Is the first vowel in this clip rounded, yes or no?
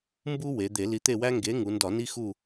yes